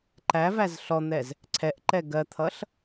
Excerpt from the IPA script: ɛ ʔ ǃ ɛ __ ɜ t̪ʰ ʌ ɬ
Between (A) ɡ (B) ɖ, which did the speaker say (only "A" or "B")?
A